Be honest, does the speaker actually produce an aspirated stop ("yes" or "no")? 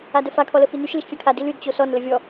yes